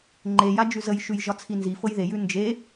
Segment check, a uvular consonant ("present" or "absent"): absent